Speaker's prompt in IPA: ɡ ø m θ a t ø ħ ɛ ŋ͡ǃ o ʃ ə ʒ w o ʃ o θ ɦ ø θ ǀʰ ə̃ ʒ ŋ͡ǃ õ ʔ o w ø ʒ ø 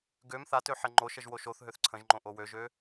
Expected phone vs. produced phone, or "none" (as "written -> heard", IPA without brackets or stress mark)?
none